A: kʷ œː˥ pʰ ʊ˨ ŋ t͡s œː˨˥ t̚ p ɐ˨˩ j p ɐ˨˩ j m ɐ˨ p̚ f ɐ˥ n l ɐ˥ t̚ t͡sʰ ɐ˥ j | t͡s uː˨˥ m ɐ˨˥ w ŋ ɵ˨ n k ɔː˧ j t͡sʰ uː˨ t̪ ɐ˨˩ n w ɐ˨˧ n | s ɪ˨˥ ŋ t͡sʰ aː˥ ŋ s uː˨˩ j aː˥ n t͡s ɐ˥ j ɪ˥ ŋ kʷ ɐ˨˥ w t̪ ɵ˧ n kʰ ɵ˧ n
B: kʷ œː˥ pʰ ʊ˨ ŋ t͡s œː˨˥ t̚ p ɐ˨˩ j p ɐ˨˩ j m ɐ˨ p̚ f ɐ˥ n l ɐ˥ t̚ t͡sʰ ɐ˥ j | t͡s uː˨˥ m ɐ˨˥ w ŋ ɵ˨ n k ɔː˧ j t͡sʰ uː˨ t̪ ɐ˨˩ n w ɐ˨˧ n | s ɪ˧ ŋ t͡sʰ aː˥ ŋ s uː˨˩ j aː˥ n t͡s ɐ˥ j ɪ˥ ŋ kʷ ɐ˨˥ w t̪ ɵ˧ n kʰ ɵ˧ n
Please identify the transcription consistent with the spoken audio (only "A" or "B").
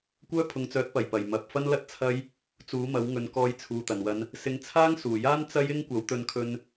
A